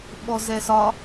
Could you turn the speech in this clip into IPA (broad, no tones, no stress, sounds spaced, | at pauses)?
ɓ ɔ z ɛ s ɒ